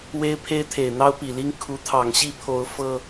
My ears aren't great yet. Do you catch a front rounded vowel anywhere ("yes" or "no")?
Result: no